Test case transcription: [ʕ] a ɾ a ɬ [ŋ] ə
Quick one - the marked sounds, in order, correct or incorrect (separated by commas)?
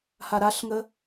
incorrect, correct